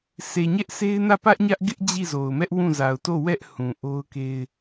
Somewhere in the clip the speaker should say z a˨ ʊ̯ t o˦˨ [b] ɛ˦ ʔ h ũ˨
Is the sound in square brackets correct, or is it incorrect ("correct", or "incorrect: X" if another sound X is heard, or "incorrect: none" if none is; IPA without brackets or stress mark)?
incorrect: w